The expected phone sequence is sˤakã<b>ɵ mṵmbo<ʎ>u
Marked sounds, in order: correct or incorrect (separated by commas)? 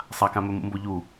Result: incorrect, correct